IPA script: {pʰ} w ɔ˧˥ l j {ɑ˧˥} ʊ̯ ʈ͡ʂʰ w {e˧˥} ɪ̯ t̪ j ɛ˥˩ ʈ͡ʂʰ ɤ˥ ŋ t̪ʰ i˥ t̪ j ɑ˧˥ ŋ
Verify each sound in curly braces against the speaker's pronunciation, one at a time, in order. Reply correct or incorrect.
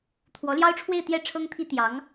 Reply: incorrect: t̪ʰ, incorrect: ɑ˥, incorrect: e˥˧

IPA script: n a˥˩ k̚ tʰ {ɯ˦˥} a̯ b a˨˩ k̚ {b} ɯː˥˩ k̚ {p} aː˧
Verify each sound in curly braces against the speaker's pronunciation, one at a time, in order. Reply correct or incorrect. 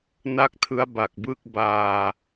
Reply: correct, correct, incorrect: b

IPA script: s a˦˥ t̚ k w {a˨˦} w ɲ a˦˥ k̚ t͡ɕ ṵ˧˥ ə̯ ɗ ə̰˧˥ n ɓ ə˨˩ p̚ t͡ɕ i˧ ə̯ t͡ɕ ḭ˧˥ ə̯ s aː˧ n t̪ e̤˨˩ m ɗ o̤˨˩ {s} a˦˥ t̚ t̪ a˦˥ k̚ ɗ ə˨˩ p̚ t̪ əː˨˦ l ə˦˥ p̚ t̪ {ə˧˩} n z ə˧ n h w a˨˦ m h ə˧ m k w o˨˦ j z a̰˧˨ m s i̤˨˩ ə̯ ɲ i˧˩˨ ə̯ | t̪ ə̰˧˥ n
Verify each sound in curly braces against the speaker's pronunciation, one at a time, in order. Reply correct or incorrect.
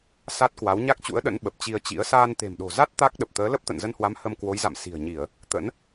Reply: correct, incorrect: z, incorrect: ə̰˧˨

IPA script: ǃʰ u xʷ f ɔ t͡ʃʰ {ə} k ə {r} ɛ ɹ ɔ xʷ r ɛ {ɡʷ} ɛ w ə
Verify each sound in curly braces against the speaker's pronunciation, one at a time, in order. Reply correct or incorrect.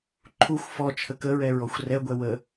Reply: correct, incorrect: ɹ, correct

